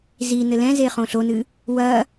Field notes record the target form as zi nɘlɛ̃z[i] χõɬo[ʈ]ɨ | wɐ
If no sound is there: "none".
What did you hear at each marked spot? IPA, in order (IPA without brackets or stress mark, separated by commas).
e, n